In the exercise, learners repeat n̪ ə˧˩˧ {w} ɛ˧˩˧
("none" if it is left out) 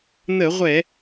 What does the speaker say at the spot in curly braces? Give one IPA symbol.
ʁʷ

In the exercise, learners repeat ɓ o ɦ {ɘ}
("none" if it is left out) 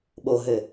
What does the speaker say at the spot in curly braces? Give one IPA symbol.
ɘ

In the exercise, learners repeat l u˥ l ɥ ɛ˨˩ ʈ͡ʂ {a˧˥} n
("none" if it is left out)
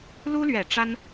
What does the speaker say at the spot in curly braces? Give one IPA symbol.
a˥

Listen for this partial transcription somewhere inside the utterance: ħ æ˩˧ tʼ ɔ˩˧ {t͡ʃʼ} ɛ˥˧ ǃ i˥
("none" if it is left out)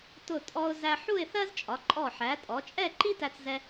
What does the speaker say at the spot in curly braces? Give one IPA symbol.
t͡ʃʼ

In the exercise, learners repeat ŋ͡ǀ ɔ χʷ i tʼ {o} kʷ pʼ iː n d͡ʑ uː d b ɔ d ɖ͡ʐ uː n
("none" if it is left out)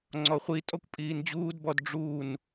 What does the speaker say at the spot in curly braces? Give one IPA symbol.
ɔ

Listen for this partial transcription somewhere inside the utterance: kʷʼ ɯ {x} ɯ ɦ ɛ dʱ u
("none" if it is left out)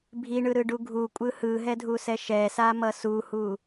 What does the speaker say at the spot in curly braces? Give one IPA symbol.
h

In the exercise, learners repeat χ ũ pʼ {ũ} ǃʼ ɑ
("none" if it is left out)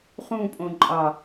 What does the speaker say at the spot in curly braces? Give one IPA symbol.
õ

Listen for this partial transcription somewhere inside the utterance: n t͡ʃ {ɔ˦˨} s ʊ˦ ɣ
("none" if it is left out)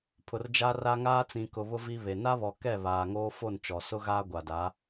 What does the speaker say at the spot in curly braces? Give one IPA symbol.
ɔ˨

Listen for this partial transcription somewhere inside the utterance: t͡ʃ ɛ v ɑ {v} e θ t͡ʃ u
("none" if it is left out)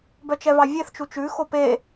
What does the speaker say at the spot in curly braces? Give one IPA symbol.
vʲ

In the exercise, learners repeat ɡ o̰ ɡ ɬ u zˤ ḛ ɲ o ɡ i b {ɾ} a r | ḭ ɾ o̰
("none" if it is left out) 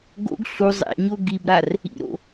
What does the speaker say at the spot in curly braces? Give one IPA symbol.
ɾ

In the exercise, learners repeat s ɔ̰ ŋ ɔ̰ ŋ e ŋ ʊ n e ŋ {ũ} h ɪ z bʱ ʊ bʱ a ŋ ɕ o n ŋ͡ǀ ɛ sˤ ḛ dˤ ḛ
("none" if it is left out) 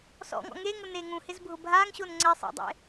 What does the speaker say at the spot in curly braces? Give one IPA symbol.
ũ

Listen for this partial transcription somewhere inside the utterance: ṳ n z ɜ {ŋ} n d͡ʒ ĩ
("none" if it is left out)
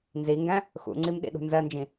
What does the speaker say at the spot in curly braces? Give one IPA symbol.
none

